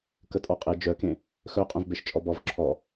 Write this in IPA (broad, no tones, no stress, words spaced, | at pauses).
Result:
kətʼɔqʼe d͡ʒœkẽ | xœqʼœ̃vbeʃ t͡ʃʼɔbɔv ǁʰɔ